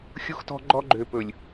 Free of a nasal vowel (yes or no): yes